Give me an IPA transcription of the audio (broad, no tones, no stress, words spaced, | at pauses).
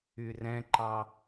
yrɛ̃ǃɑ